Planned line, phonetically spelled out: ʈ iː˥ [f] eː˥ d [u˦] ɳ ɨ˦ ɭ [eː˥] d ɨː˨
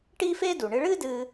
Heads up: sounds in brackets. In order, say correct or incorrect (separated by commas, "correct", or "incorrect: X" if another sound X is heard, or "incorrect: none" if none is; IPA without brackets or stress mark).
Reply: correct, incorrect: u˩, incorrect: ɨː˥